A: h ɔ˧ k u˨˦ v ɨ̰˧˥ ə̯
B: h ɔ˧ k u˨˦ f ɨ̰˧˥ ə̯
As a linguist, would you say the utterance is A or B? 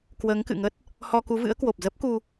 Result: A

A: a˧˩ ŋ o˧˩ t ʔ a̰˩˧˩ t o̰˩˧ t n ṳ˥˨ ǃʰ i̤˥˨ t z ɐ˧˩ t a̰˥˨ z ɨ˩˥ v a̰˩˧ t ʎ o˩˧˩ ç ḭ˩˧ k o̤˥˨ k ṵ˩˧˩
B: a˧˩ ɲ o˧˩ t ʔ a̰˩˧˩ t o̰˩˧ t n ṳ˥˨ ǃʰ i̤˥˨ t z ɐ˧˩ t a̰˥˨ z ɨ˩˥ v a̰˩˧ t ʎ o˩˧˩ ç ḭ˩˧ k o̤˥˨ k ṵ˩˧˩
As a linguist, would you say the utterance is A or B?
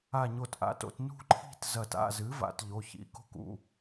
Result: B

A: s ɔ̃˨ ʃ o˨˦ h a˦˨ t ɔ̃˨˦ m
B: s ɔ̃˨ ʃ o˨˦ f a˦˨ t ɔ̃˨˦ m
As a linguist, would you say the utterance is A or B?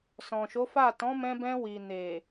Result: B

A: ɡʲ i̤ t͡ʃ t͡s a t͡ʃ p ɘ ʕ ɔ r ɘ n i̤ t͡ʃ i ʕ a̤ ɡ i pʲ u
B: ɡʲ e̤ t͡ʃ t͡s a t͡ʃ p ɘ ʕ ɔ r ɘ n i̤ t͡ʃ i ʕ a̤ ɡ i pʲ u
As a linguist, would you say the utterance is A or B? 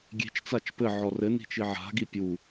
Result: B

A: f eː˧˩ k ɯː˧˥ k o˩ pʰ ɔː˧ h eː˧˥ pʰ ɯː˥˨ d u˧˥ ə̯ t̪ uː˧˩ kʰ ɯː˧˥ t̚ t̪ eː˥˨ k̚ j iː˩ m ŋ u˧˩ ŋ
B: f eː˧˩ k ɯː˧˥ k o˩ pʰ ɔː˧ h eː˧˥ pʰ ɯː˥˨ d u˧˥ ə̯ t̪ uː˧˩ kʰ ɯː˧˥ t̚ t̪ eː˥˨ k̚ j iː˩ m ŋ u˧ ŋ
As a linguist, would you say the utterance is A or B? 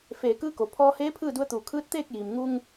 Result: B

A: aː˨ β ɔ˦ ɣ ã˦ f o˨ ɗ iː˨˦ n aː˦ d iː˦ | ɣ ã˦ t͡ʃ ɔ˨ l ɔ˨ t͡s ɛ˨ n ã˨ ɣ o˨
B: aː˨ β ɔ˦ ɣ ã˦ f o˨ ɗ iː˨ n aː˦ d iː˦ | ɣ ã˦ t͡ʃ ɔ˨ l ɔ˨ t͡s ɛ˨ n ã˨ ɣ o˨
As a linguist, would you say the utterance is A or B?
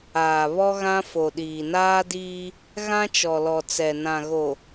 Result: B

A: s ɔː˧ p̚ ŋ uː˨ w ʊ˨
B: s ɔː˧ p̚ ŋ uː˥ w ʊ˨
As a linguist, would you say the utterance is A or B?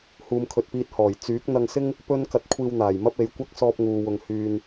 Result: A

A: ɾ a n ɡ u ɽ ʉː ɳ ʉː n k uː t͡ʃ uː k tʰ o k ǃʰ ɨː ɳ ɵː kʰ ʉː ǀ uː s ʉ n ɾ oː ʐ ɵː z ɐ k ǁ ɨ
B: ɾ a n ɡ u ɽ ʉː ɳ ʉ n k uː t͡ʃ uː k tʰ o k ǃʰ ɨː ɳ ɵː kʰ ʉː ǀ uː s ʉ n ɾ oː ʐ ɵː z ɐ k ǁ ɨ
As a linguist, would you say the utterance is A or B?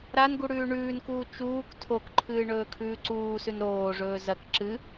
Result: A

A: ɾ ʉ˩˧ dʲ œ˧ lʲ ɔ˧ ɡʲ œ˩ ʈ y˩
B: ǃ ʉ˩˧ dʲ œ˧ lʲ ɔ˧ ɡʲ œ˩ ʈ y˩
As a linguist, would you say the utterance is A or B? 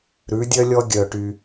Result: A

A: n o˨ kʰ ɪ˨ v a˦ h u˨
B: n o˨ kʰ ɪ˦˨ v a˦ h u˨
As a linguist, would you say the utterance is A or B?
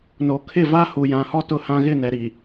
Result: B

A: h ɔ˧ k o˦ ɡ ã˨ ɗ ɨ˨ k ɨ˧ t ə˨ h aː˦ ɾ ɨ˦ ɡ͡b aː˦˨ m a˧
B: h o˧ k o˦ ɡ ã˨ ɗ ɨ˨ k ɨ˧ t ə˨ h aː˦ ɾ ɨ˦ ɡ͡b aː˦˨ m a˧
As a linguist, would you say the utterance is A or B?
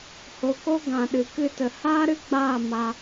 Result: B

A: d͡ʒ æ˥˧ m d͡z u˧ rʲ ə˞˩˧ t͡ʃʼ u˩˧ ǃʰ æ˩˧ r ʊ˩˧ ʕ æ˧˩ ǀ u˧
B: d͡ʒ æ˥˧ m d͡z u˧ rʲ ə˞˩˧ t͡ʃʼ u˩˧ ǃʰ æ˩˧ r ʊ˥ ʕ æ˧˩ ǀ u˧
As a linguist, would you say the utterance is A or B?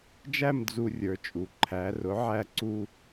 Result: A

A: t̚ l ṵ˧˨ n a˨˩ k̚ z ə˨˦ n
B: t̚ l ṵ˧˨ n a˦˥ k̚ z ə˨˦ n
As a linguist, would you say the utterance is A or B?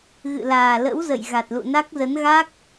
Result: B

